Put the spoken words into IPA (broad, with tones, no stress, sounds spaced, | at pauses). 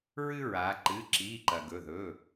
ɹ ɨ˦ ɹ aː˩˧ ǃ ɨ˩˧˩ ǁ iː˩˧˩ ǃ ɐ˩ ɡ ɵ˩˧˩ ð ɵ˩˧˩